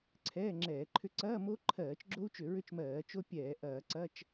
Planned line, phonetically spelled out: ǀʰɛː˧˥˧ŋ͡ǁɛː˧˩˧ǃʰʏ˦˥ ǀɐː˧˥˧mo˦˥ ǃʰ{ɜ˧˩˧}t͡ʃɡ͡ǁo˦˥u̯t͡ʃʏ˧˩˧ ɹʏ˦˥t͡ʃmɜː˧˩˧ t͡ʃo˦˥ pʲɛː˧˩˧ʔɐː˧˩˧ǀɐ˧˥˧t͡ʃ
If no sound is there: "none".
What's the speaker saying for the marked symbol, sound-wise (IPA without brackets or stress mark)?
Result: ɜː˧˩˧